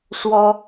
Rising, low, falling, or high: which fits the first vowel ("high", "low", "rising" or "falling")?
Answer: high